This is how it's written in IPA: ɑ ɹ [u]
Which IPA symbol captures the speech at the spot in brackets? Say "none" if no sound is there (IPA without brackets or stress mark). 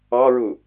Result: u